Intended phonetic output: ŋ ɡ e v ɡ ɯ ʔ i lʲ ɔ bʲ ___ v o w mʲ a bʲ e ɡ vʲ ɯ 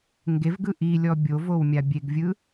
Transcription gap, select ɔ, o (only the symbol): o